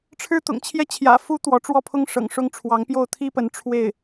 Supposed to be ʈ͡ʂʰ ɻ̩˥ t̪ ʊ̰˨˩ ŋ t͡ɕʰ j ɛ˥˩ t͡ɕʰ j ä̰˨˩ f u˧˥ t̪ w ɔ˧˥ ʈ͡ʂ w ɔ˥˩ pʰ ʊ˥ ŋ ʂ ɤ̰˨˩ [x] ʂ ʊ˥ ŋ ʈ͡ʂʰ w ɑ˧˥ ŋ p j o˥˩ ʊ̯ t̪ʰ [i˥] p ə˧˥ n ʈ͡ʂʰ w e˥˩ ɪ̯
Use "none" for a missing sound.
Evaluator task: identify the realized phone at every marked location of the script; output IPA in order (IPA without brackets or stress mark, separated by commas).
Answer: ŋ, i˥